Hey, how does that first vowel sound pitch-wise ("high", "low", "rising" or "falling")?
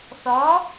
rising